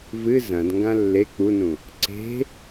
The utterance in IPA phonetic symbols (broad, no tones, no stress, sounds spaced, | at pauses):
v ɨ z ɐ̃ d ŋ ɡ ã lː e k͡p u n ũ | ǀ e̤